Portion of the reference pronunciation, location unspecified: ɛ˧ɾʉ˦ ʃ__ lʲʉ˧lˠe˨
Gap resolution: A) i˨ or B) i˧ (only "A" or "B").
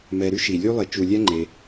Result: A